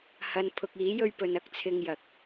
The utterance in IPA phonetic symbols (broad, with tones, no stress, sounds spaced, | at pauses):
h ɐ˨˧ n pʰ ʊ˨ k̚ iː˨˥ j ɵ˧ ɥ p ɵ˨ n ɐ˧ k̚ t͡sʰ ɪ˧ ŋ j ɐ˨ k̚